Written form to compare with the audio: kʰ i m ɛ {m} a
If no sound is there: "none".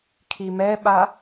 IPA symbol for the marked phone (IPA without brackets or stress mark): ɓ